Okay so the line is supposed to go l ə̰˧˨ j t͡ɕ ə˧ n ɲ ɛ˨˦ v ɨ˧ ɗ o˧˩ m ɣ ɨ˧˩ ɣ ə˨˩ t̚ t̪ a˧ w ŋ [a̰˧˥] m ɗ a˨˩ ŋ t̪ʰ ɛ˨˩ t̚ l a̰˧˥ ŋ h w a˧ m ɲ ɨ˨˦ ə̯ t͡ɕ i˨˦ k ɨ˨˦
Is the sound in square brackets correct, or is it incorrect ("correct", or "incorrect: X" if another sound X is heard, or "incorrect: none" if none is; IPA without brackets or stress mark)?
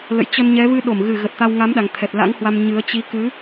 incorrect: a˨˦